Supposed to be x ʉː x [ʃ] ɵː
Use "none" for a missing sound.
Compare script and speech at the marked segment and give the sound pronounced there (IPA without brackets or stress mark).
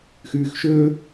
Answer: ʃ